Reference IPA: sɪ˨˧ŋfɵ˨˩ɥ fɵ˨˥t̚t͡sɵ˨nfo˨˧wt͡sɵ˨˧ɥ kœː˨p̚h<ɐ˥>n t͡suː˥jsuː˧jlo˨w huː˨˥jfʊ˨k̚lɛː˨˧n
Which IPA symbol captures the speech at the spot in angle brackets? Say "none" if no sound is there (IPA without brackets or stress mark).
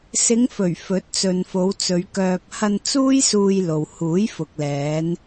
ɐ˧